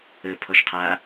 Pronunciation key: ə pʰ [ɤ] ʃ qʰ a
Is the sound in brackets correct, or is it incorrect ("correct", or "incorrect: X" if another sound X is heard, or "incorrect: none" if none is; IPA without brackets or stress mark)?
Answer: incorrect: ɔ